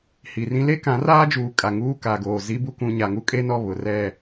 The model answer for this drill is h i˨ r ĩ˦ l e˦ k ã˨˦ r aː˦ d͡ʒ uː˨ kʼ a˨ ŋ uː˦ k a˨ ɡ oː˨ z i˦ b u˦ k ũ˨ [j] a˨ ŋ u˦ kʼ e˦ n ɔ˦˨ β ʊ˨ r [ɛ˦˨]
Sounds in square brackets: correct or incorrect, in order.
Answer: incorrect: ɲ, correct

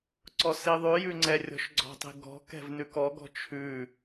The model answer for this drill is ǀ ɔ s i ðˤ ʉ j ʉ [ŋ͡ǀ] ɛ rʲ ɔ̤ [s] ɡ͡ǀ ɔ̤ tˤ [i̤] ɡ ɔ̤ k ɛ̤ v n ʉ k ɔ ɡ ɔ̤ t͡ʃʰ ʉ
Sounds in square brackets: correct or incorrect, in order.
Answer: correct, incorrect: ʃ, correct

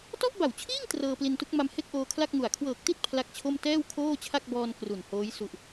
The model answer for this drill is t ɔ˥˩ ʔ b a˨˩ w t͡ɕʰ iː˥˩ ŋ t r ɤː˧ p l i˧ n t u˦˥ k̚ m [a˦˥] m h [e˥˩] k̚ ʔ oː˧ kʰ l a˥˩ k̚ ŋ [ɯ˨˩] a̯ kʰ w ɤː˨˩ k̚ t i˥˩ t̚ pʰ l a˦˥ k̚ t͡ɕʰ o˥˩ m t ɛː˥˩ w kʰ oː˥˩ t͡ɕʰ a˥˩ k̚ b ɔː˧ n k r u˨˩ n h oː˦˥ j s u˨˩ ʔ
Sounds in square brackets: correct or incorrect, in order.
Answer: incorrect: a˧, correct, incorrect: u˨˩

